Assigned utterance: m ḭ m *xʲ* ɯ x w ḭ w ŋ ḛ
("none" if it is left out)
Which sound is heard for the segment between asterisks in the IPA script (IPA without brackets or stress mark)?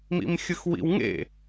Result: xʲ